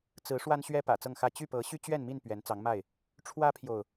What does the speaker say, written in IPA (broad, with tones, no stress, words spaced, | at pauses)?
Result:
t͡sɹ̩˨˦ ʂwa˦nɕɥɛ˦ pä̰˨˩ t͡sɤ˥˨ŋxä˥˨ t͡ɕy˥˨ pɤ˨˦ɕy˦t͡ɕɥɛ˥˨nmi˥˨n pɥɛ˨˦nt͡sɑ˨˦ŋma˥˨ɪ̯ | ʈ͡ʂʰwä˦pʰjo˨ʊ̯